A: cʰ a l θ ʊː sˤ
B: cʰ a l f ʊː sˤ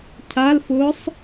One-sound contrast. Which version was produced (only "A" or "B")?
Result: B